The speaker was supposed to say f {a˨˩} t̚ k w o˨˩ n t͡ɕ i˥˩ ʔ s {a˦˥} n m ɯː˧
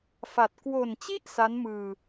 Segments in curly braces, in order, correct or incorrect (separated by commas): correct, correct